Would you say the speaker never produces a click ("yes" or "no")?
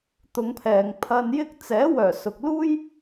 yes